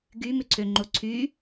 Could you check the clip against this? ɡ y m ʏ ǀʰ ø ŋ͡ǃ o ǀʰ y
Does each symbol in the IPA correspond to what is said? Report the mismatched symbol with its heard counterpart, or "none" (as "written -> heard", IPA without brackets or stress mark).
none